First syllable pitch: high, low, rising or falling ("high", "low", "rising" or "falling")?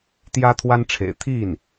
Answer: high